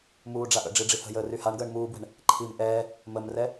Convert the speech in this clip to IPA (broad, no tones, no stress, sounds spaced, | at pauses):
m uː ɖ͡ʐ a ʔ ə̰ ɖ͡ʐ i ɖ͡ʐ i h ə̤ j əː r y h a ɳ ɡ əː ɳ m uː b w ɛ̤ ɳ | ǃʰ i m ʔ ɛː | m ə m r ɛ